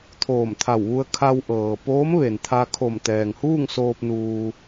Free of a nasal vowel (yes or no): yes